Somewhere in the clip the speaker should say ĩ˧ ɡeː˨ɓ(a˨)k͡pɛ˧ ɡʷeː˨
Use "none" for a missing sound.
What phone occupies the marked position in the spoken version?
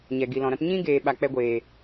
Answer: a˨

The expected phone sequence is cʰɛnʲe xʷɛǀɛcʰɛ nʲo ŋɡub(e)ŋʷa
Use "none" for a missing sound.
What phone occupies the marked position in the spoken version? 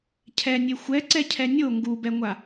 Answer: ɛ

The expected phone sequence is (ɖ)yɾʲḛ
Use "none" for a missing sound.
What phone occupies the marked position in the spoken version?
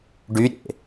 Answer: ɖ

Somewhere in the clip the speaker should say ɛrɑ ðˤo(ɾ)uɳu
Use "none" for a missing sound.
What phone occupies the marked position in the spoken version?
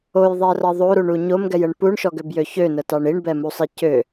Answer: ɾ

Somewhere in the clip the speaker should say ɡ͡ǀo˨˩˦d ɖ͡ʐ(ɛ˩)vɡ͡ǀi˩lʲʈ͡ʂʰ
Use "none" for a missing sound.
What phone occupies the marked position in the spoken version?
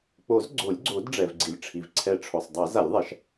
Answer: ɛ˩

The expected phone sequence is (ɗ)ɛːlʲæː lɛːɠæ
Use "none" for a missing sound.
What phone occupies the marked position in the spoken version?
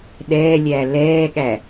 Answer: ɗ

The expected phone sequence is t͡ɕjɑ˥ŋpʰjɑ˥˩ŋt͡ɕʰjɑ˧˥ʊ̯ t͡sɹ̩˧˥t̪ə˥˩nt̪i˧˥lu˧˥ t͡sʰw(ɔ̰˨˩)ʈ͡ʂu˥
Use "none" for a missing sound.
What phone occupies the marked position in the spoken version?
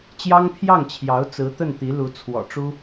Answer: ɔ̰˨˩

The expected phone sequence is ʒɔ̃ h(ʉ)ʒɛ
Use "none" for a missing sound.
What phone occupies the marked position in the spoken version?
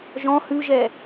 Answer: ʉ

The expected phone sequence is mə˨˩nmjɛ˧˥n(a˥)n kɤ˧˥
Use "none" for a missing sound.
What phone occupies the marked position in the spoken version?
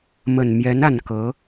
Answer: a˨˩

